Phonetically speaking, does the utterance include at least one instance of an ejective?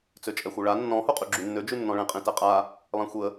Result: yes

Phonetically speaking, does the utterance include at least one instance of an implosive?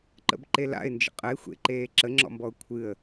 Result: no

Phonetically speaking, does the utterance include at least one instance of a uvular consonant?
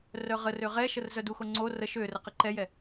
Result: yes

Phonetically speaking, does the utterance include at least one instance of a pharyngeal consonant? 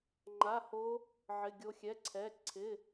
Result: yes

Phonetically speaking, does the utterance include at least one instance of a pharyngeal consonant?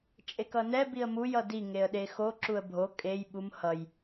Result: no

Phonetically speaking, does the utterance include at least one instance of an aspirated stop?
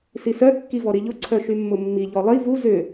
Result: yes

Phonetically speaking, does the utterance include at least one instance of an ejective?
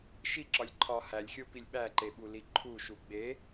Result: no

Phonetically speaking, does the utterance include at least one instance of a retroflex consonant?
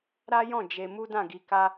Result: no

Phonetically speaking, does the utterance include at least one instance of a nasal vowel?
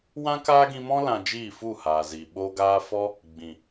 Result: yes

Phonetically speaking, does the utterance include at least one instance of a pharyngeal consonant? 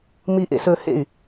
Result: no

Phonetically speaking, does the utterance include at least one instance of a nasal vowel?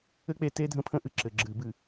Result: yes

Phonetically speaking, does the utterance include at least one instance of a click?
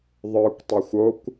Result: no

